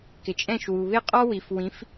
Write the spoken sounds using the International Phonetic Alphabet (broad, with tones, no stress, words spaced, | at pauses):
kɪ˨t͡ʃʼɛ̃˥˨ʃwu˨ βɪ˥˨qʼɔ˥ wi˨f wĩ˨˦f